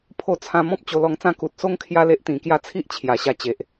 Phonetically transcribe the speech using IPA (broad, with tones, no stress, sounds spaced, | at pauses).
pʰ o˧ t͡sʰ ã˧ m ɔ̃˦ p̚ t͡ɕ o˧ l ɔ˧ ŋ t͡s ã˥˧ k u˨ t̚ s o˦ ŋ kʰ j a˦ l e˦ ʔ t̪ ĩ˨˩ k j a˦ t͡sʰ i˦ ʔ t͡ɕʰ j a˨˩ ɕ a˧ t͡ɕ e˨ ʔ